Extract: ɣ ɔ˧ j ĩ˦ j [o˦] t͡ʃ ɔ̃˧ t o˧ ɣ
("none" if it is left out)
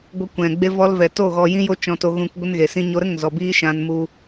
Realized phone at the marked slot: o˦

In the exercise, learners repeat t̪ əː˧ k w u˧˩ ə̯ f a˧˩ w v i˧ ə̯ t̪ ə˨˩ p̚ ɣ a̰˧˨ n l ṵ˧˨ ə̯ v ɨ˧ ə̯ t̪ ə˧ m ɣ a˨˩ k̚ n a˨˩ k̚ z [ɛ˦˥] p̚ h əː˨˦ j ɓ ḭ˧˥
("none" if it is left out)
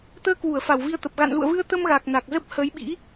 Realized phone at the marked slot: ə˦˥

